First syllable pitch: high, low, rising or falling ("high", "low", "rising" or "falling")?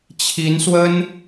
rising